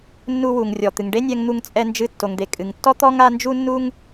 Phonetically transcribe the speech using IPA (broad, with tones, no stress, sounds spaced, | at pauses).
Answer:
nː u˧ w u˩ ŋ rʲ ɔ˩ t̪ ɨ˩ ŋ ɖ e˥ nʲ ɛ˧ ŋ n̪ u˧ ŋ t͡sʼ ɛ˧ n d͡ʒ ɨ˧ tː o˩ ŋ d̪ e˩ kʼ ɨ˩ ŋ tː ɔ˥ t̪ ɔ˥ ŋ a˥ n d͡ʒ u˥ nː u˥ ŋ